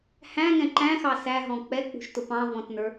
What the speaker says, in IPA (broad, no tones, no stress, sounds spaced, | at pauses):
h æ̃ ŋ ɛ̃ ǃ æ̃ x ɑ s æ ɦ ɔ̃ k͡p ɛ k͡p ṳ ʃ t ʊ p ɑ̃ v ɔ̃ t n ə˞